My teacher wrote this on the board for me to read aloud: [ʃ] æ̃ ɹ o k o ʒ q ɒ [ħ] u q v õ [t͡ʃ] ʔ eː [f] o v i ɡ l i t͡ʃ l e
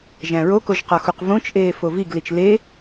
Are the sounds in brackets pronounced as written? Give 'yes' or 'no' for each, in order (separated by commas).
no, no, yes, yes